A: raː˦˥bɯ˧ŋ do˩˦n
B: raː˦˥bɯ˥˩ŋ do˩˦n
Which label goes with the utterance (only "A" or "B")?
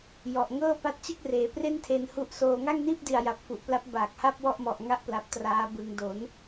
A